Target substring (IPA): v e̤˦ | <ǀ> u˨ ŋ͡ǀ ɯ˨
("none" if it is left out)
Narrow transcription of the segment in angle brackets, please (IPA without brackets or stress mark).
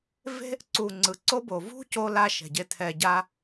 ǀ